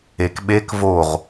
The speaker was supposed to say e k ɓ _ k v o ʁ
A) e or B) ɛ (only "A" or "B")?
A